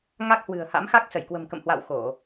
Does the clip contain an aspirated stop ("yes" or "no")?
no